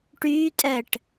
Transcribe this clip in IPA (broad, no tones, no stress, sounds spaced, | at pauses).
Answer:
ʈ yː tʼ əː ʈ